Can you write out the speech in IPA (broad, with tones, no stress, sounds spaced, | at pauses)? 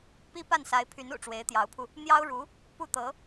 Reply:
p i˥ p a˥˩ n s a˧˥ ɪ̯ pʰ y˧˥ n ṵ˨˩ ʈ͡ʂ w e˧˥ ɪ̯ t̪ j ɑ˧˥ ʊ̯ pʰ u˧ | n̪ j ɑ˥ ʊ̯ ɻ u˧˥ | p u˥˩ t̪ ɤ˧˥